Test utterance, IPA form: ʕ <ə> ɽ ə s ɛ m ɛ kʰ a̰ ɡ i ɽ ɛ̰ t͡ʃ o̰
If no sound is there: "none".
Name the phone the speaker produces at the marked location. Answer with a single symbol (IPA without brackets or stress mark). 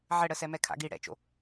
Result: ə